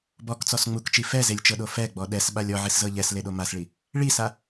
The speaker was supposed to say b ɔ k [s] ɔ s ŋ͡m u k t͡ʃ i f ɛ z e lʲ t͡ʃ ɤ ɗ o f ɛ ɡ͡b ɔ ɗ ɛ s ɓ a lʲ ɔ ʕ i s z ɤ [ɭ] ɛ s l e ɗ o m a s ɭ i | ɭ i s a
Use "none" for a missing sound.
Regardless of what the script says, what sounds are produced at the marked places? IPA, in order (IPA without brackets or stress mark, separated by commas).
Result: t͡s, ʎ